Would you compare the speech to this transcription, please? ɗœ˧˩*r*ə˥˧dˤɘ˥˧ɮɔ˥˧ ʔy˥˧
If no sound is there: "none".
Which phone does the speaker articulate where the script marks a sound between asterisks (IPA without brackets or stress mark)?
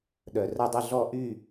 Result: r